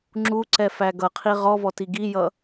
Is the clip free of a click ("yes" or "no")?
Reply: no